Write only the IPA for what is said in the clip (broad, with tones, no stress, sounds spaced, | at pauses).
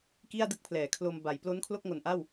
k i˥˩ a̯ d ɯ˥˩ k̚ pʰ l ɛː˩˦ kʰ l o˧ m b a˩˦ j p l o˦˥ n kʰ l o˥˩ k̚ ŋ o˨˩ n ʔ a˥˩ w